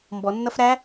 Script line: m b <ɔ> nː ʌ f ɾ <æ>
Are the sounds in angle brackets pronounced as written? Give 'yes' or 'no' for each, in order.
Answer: yes, yes

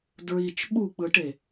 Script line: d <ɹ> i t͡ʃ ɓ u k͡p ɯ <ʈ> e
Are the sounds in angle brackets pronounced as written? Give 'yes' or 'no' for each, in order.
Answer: yes, yes

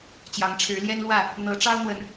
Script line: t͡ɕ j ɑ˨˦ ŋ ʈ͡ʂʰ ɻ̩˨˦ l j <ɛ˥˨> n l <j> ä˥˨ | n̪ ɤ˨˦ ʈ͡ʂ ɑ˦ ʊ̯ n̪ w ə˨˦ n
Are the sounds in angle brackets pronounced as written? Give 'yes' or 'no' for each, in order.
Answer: no, no

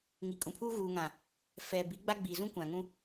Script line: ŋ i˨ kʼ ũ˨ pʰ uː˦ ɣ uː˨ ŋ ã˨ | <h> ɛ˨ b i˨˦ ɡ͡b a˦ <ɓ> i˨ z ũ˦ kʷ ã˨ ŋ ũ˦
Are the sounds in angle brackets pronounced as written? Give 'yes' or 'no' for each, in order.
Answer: no, no

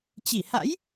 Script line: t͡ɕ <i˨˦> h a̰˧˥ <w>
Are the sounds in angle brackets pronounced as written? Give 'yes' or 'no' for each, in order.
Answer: no, no

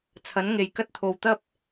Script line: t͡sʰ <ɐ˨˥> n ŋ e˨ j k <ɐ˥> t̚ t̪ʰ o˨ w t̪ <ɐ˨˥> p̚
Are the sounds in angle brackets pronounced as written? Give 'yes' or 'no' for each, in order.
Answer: yes, yes, no

